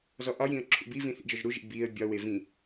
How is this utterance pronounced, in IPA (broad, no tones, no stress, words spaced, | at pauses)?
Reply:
zɔʔɒjĩə̯ ǁʰṵbivĩ θḭd͡ʒɔʒɾuʒḭ biə̯ bʲɒwe vĩ